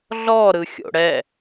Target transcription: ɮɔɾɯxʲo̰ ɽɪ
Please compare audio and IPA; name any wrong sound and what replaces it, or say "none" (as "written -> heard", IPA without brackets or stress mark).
ɪ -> ɛ